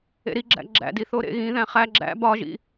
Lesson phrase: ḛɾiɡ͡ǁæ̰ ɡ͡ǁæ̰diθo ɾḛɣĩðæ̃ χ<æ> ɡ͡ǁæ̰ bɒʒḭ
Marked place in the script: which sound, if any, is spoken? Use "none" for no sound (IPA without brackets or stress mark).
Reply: æ